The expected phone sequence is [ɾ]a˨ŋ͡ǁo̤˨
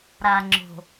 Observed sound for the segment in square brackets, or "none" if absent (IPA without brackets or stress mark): ɾ